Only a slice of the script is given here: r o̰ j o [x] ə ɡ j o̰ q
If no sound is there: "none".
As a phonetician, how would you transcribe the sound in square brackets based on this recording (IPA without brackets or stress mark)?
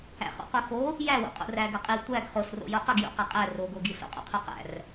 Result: q